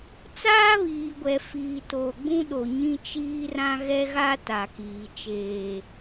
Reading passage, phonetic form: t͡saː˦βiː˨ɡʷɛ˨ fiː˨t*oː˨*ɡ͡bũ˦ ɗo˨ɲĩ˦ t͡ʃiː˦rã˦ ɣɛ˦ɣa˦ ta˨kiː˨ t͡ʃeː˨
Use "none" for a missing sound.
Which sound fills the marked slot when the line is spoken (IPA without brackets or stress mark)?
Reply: oː˨